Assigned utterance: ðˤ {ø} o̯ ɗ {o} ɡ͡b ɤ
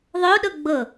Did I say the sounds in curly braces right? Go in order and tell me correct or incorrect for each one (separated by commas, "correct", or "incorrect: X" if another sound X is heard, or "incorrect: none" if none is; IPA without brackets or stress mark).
correct, incorrect: ɤ